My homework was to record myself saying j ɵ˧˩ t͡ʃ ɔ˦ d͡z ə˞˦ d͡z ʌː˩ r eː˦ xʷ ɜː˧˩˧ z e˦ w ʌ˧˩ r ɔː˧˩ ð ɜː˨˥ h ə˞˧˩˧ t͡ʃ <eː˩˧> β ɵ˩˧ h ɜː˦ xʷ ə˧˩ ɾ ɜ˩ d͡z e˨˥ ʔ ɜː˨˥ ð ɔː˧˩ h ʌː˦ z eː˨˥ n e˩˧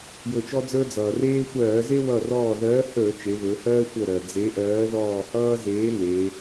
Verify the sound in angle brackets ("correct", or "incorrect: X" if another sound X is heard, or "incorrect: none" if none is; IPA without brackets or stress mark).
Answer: incorrect: e˩˧